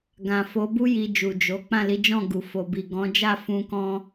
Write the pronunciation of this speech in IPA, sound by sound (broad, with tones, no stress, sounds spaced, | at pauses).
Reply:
ɡ ã˨ f o˨˦ b u˦ j i˧ d͡ʒ u˨ d͡ʒ o˨˦ k͡p ã˦˨ l i˨˦ d͡ʒ ɔ̃˦˨ ɡ u˨ f o˨ b i˨ ɡ ɔ̃˨˦ d͡ʒ a˦˨ f ũ˧ k ɔ̃˧